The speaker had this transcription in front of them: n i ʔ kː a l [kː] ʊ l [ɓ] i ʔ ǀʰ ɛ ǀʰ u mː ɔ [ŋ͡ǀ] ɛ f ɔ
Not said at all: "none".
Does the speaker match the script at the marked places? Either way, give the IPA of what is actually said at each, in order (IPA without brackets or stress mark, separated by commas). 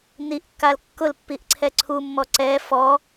kː, pː, ǀ